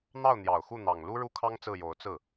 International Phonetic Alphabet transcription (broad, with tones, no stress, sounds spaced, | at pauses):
n̪ ɑ˥˩ ʊ̯ n̪ j ɑ˨˩ ʊ̯ x u˥˩ n̪ ɑ˨˩ ŋ l u˥ ɻ u˥ kʰ ɑ˥ ŋ t͡s ɹ̩˥˩ j o˧˥ ʊ̯ t͡s ɹ̩˥˩